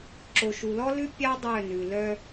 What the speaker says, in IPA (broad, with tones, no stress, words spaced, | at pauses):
ǁo˨ʃu˨lɔ˦lʉ˦ pʲɑ˦ dˤœ˦˨nʉ˨lœ˦